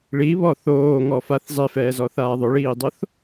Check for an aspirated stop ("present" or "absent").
absent